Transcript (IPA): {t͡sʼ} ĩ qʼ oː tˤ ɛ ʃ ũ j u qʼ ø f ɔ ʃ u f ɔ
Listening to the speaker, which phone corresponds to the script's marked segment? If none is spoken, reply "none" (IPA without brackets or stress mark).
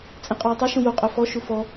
t͡sʼ